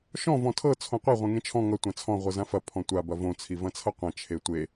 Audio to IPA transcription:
ʃ ɔ̃ v ɔ̃ tʰ ɤ t͡sʰ õ qʷ ɐ ʁʷ ẽ ŋ ẽ t͡ʃʰ ɔ̃ ŋ ʌ tʷ ã t͡sʰ ɔ̃ ʁʷ ɤ z ã f ɐ pʰ ɔ̃ tʷ a b ɐ v õ t͡sʰ i v ɐ̃ t͡sʰ ʌ qʷ ɐ̃ t͡ʃʰ e tʷ e

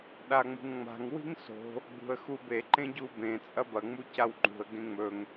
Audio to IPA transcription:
ɗ a ŋ͡m ṳ ŋ ŋ͡m a̤ ŋ w i̤ ŋ s o̤ | ɡ͡b ṳ ə̯ x u b e ǃ ẽ ɟ u b ẽ t͡sʼ ɐ b ɐ ŋ͡m u c a w ŋ͡ǃ ṳ ə̯ ɡ ẽ ŋ͡m ɵ ŋ

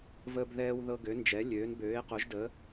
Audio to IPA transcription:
v əː˦ b ð ɛː˦ w ð ɤ˦ ɡ ø˨˥ n d͡ʒ ɛ˨˥ lʲ øː˨˥ n b øː˨˥ e̯ q o˨˥ ʒ d əː˨˥

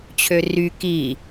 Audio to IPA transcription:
t͡ɕʰ ø r y k i

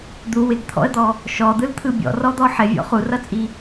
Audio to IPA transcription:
d̪ u w ɪ ɡ t̪ʰ ɔ̰ ə̯ d̪ ɔ | ʃ ɔ d̪ ɯ l t̪ʰ ɯ bʲ ɔ̰ r ɔ d̪ ɔ ħ ɪ vʲ ɔ̰ χ u r ʌ t͡sʼ i

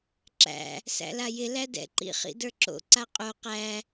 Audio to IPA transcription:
ǁ æ̰ | s æ̰ l a j ɪ l æ d ɛ̰ ǃ ḭ χ ḭ d ə˞ ǁ o̰ ǀ a qʼ o q æ

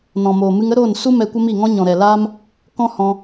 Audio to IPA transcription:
n ɔ̃˨ m oː˨ m ɨ˧ ŋ ə˦ ɾ oː˦˨ n s u˦ m ɛ˧ kʷ ə˦ m i˦˨ ŋ ɔ̃˦ ɲ ɔ̃˨ ɾ ɛ˨ l aː˦ m | k ɔ̃˦ h ɔ̃˧

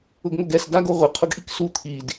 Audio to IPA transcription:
ʊ ɡ ŋ o ɡ ɛ s d a ɡ o ʁʷ ɪ qʰ ʊ ɡ ʔ i k s u t̪ʰ i d

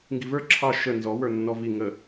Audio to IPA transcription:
ŋ ɡ i v ə˞ ǁʰ ɑ ʃ ə n z ɔ w ə˞ nː ɔ v i ŋ ə

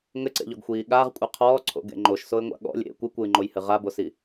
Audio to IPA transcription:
ŋ ɘ ǀ ḛ ʎ ɔ ɡ xʷ iː ɠ a ʁ kʷʼ e qʰ ɔː ǀʰ o̰ ɡ ḛ ŋ͡ǃ o ʃ s o ɪ̯ ŋʷ a̰ ɠ ɔ̰ lʲ ḛ kʷ ɨ kʷ ɨː ŋ͡ǃ o j h ɨ ʁ a b o s i

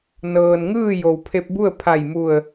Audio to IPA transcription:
n ɤː˩ n ŋ ɯː˥˨ j o˩ w pʰ e˧ p̚ b u˥˨ ə̯ pʰ a˧˩ j m u˧˩ ə̯

